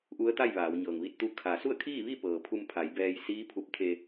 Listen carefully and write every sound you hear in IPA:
ʔ u˧˥ ə̯ t̪ a˥˨ j ʋ aː˩˧ w ɲ ɤː˩ ŋ ʋ i˧ t̚ t̪ u˧˥ kʰ a˩˧ s u˥˨ ə̯ kʰ iː˥˨ ʋ i˥˨ p ɤː˩ pʰ u˧ m pʰ a˩˧ j b ɛː˧ j s iː˧˥ pʰ u˧ p̚ t̪ʰ e˧

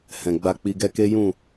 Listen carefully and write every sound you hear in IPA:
h ɛ̃˨ ɡ͡b a˧ k͡p i˧ ɡ ɛ˦ k e˦ j ũ˦˨

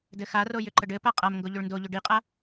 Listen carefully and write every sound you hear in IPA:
d ɘ x a r o j ʏ ǃ ə ɖ ɘ p a qʼ a m ŋ ɡ o ʎ ʏ ɭ n d o ʎ ʏ ɖ i qʼ a

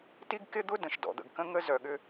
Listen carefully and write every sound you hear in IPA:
t i˦ ɡ k ɪ˦ d̪ ʊ˦ d ə̃˨ ʃ d ɔ̰˨ d̪ ə̰˨ ɡ k ə̃˦ ŋ ə˦ z œ˨ ɠ ʏ˦

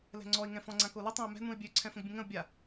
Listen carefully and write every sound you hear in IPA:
l ɛ̤ ŋ͡ǀ ɔ ɪ̯ ŋ ɛ̃ f ɔ̃ ŋ͡ǀ ã k o l ə tˤ ã ʊ̯ m ɛ̤ n ũ ɪ̯ bʲ ø ǀʰ ɛ̃ f ə̃ ɡ bʲ ə̃ ŋ ə̃ ʊ̯ bʲ a

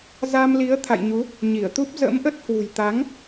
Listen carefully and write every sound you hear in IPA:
z a˧ m l i˨˦ ə̯ t̪ʰ a̰˧˨ j ɲ u˨˦ | ɲ i˧˩ ə̯ t̪ u˦˥ p̚ z ə̰˧˥ m ʔ ə˦˥ t̚ h w ṳ˨˩ j t̪ a˨˦ ŋ

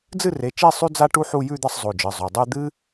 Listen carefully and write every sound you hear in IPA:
d͡z ɨ˥˧ r e˩˧˩ t͡ʃ e˥˧ sˤ ʉ˥ d͡z a˥ ʈ u˥ ħ u˥˧ j ʉ˥˧ d̪ ɐ˥˧ sˤ zˤ o˩˧˩ d͡ʒ ɨ˩˧˩ zˤ o˩˧˩ dˤ ʉ˥˧ d̪ ɨ˥

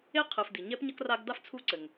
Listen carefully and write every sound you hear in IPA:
e˥ qʰ ɨ˨ f d̪ i˩ ɲ ɛ˥ p ɲ ɐ˥ k r a˦ ɡ d̪ a˥ f t͡sʰ u˦ ǀ ɘ˩ ŋ

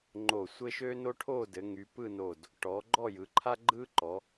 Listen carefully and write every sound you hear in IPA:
ŋ͡ǃ o˧˩ sʷ ɘ˥ ʃ ø˥ n o˥ ʈʰ o˥˧ d ɘ˩˧ ŋ y˩˧ p ɯ˥˧ n o˧˩ d | ʈ ɔ˩˧ ɡ͡ǃ ɔ˥˧ j ɯ˩˧ ǃʰ a˥ ɡ͡ǃ ɯ˥ ǃ ɔ˩˧

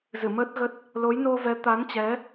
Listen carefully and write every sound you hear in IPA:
z ɨ˧˩ m əː˦˥ t̚ ɣ ə˦˥ t̚ | l o˨˦ j n o˧ v ɛ˨˦ t̪ a˨˦ n t͡ɕ ɛ˨˦

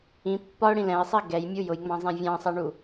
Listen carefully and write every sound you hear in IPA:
ĩ pː ɒ ʊ̯ ɽ ĩ l ɛ̃ ɪ̯ sˤ i ɡ ɛ j mʲ u j ʊ j ŋ͡m ɑ̃ zˤ ɛ̃ vʲ ɑ̃ sˤ ɑ ɳ u

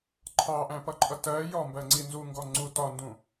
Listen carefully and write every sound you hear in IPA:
ǃʰ ɑ ʔ æ̃ p ʌ ǃʼ ʌ t ɜ j ɔ m b ɜ ŋ͡ǀ i n z u ŋ ɡ ɔ ŋ͡ǀ u t ɒ n d ũ

